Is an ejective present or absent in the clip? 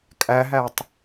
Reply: present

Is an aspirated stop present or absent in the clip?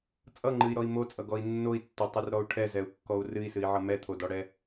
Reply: present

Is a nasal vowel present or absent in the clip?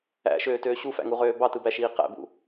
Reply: absent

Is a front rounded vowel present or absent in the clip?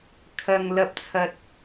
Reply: absent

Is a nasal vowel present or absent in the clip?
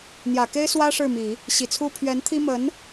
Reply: absent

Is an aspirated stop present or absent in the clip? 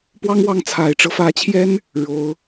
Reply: present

